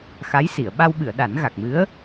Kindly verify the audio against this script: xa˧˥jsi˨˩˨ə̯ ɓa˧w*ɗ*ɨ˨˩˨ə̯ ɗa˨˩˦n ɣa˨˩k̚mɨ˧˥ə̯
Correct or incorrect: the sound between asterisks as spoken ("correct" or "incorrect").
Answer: incorrect